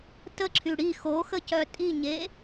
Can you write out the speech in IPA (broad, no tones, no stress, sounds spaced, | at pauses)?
t ə ǁʰ y ɽ i x o x ə c œ tʼ i ɲ e